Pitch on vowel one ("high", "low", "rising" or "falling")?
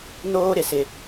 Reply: high